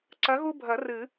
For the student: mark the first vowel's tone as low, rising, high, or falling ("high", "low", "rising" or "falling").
rising